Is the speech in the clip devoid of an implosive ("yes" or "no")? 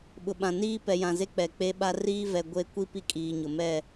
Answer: no